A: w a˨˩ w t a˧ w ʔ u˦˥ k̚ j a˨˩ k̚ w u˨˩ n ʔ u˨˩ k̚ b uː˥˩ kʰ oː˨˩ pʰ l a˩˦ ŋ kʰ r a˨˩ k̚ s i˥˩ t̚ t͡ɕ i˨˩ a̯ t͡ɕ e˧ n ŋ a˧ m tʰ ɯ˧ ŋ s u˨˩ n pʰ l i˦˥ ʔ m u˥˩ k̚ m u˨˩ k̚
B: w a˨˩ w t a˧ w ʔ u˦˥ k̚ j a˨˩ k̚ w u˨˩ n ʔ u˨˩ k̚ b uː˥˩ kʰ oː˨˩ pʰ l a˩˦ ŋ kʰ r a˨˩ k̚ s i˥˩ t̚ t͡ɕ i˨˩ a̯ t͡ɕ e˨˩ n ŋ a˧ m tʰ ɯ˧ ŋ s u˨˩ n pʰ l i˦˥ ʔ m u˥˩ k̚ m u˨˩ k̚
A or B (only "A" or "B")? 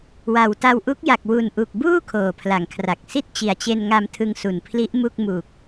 A